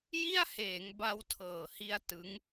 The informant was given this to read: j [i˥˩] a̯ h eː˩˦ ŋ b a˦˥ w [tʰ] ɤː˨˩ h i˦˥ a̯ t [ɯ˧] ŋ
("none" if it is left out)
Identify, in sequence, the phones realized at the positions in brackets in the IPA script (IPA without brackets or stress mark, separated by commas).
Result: i˥˩, tʰ, ɯ˦˥